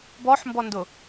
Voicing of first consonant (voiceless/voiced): voiced